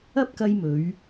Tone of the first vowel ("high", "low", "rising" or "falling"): high